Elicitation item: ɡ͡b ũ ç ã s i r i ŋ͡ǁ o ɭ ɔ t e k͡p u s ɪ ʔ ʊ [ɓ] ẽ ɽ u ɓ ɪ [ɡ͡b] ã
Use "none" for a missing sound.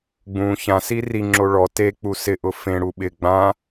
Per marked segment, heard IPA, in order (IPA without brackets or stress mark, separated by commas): f, ɡ͡b